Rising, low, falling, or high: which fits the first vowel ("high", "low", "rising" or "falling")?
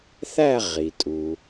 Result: falling